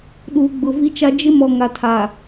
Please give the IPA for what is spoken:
ɗ uː˨ ɡ͡b ʊ˨ v i˦ t͡ʃ a˦ d͡ʒ ɪ˦ m ɔ˨ ŋ a˨ tʰ aː˨

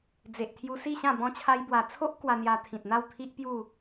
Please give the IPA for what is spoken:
d͡z e˨ ʔ t̪ʰ j u˧ s i˥˧ ɕ ã˥˧ b ɔ̃˧ t͡ɕʰ a˧ j b w a˨˩ t͡sʰ o˦ ʔ k w a˧ n̪ j a˧ t̪ʰ ĩ˨ t̚ n̪ a˥˧ w t̪ʰ i˦ ʔ p j u˥˧

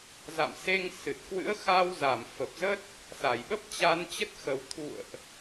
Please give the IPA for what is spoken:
z a̰˧˨ m s e˧ ŋ s ɨ˨˩ t̚ k w ɨ̰˧˥ ə̯ x a˧ w z a˧˩ m f ə˨˩ p̚ z ə˦˥ t̚ | s a˧˩ j ɓ ə˦˥ p̚ t͡ɕ a˧ n t͡ɕ ə˦˥ t̚ x ə˨˩ w t̪ʰ ṵ˧˨ ə̯ ʔ

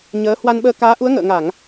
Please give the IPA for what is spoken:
ɲ əː˨˦ h w a˧ n ɓ əː˧ k aː˨˦ ʔ u˨˦ ə̯ ŋ ə̰ː˧˨ ŋ a˧˩˨ ŋ

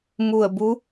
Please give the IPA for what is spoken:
m u˧˩ ə̯ b u˧˥

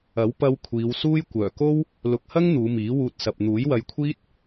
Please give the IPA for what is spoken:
ɐ˨˥ w p ɐ˧ w kʷʰ iː˨˧ w s uː˥ j kʷ œː˨˩ k o˥ w | l ʊ˨ k̚ h ɐ˥ ŋ n̪ uː˨˧ m iː˨˥ w uː˧ t̚ s ɐ˨ p̚ n̪ uː˨˥ j w ɐ˧ j kʷʰ iː˥ t̚

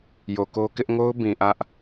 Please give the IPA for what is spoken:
j o˨ k o˦ k ɪ˦ ʔ ŋ o˦ ʊ̯ b ĩ˨ ʔ ä˦ ʔ

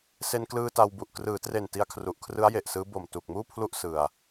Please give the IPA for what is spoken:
s e˧ n k l ɯː˧ t a˧ w b u˨˩ ʔ k r ɯː˩˦ t r e˨˩ n t i˧ a̯ kʰ r u˨˩ ʔ kʰ r ɯ˦˥ a̯ j e˨˩ ʔ s ɯː˦˥ b o˨˩ m t uː˨˩ k̚ m uː˥˩ pʰ l u˥˩ ʔ s ɯ˧ a̯

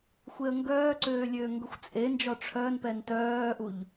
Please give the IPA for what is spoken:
xʷ e ə̯ ŋ ɡ œː ǀ øː lʲ øː ŋ ɡ ə xʷ t͡sʼ e n d͡ʒ ɔ ʈ͡ʂʰ œ n p ɛ n t œː ʔ u ʎ

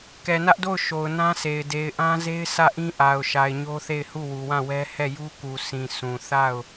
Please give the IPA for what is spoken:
k ɛ˨ n ä˦ ʔ d o˦˨ ʊ̯ ʃ o˨ ʊ̯ n ã˦ s e˨ ɪ̯ d e˨ ɪ̯ ʔ ã˦ z e˦ ɪ̯ s ä˦˨ ʔ ĩ˦ ʔ a˨ ʊ̯ ʃ a˨ ɪ̯ ɲ o˦ θ e˦˨ ɪ̯ h u˦˨ w u˨ w ã˦˨ w ɛ˦ h ɛ˦˨ j u˦ k u˨ s ĩ˨ sʰ ũ˨ θ a˦˨ ʊ̯

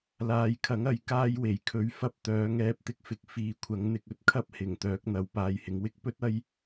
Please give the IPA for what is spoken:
l aː˨ j kʰ ɐ˨˥ ŋ ɐ˨˥ j k aː˧ j w e˨˩ j kʰ ɵ˨˥ ɥ f ɐ˧ p̚ t̪ œː˨˧ ŋ ɛː˧ p̚ t̪ ɪ˧ k̚ f ɪ˧ k̚ f iː˨ kʷʰ ɐ˨˥ ŋ n̪ ɪ˧ k̚ ɵ˥ t̚ kʰ ɐ˥ p̚ h ɪ˨˩ ŋ t̪ œː˨˥ k̚ n̪ ɐ˨˥ w p aː˨˧ j h ɪ˨˥ ŋ w ɪ˥ k̚ p ɵ˥ t̚ ɐ˥ j

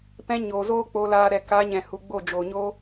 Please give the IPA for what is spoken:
p ɛ̃˧ ɲ oː˨ z oː˦ k͡p oː˧ l aː˧ ɾ ɛ˨ k a˨˦ ɲ ɛ̃˨ h u˨ ɡ͡b o˦˨ d͡ʒ o˨ ɲ o˦

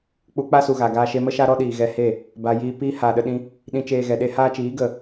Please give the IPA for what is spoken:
k͡p u˧ k͡p a˦ s u˨ ɣ a˨ ɡ aː˧ ʃ e˧ m ə˦ ʃ a˦ ɾ ɔ˦ ɗ iː˨ ɣ ɛ˧ h e˦˨ | b a˨ j iː˧ p iː˦ h aː˨ ɗ ə˧ ɗ ĩ˧ | ɗ ĩ˧ t͡ʃ eː˧ ɣ ɛ˨ ɗ e˦ h aː˦ t͡ʃ iː˨˦ ɡ ə˨

